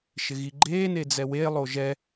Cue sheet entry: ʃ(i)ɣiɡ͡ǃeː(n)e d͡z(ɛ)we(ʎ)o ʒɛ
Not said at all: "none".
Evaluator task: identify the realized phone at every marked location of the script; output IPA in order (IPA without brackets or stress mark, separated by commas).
ɪ, n, ɛ, lˠ